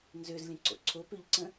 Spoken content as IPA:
n z ø z lʲ ə̃ ǀ o̰ ǀʰ o p ø ʎ ǀ ə̃

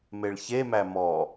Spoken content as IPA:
m e ɭ ç e m æ m ɔ

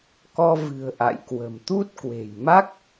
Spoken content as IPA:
k ɔ˧ v ɨ̤˨˩ ə̯ ʔ a̰˧˨ j k w ə̤˨˩ m t̪ u˦˥ t̚ k w e̤˨˩ j m a˦˥ k̚

